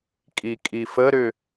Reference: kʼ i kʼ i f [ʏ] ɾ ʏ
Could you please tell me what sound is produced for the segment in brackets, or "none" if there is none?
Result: ə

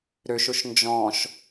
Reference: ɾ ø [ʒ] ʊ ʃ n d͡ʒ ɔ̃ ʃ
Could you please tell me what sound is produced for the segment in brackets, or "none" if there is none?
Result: ʃ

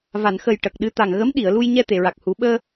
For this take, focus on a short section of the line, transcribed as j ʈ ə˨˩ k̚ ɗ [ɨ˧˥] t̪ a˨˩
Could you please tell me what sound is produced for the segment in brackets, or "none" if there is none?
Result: ɨ˧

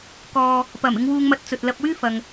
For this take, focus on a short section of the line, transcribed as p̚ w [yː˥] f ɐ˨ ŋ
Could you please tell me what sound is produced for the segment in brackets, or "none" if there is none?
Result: yː˥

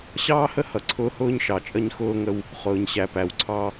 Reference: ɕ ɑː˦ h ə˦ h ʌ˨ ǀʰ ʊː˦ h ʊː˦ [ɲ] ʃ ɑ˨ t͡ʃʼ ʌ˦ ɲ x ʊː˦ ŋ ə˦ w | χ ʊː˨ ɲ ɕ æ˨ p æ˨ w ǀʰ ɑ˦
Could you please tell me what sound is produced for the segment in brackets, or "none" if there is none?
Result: ɲ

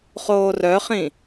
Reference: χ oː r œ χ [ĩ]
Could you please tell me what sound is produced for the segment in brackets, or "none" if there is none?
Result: ĩ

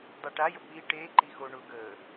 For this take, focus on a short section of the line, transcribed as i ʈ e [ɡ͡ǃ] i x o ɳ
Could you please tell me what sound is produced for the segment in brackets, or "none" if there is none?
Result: ǃ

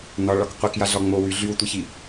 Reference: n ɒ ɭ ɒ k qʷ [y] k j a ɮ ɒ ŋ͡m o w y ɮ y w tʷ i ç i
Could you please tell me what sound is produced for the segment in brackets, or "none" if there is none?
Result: i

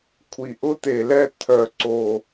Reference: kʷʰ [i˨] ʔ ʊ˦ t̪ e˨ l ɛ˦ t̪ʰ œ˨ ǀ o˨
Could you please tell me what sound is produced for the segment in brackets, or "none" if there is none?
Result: i˨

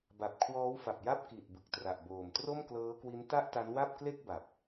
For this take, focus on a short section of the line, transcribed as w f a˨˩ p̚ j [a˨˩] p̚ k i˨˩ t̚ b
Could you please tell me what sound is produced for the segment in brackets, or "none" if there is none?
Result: a˥˩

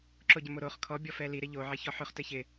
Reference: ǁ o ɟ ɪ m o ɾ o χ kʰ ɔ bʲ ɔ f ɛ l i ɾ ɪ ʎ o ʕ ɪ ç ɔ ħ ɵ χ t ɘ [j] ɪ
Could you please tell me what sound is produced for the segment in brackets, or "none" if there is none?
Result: ç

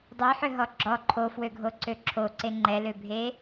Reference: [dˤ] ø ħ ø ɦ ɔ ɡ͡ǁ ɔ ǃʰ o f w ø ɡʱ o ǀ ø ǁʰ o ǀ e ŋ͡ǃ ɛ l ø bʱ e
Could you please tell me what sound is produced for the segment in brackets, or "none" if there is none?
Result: dˤ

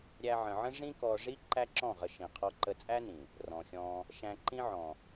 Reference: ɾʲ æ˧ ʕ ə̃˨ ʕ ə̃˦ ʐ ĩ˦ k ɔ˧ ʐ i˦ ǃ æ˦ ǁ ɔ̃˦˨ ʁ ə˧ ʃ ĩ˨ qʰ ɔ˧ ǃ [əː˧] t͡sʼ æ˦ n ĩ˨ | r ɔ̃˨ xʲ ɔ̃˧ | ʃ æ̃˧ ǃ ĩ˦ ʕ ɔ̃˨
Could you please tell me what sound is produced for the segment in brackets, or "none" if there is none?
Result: ə˧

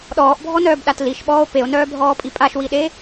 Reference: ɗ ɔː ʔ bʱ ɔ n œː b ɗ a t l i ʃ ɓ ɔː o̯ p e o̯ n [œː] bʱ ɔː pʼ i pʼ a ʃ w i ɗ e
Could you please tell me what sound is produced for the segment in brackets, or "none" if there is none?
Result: œː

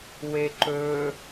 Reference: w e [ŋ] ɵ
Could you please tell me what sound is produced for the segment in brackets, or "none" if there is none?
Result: ǃ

